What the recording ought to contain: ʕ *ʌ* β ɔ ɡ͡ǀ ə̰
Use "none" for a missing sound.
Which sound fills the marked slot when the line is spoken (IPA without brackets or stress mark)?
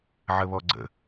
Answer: ə